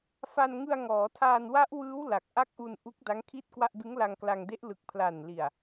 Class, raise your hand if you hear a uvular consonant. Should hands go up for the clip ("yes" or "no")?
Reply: no